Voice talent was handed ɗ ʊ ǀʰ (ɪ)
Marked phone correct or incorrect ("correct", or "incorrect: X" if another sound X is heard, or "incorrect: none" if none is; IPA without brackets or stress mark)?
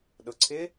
correct